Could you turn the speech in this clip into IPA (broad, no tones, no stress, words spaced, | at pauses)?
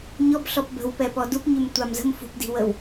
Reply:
ɲɔbɬɔp bə̤wpɛpɔ dup ɲymtʷamzə̤m fṳpdi̤wəw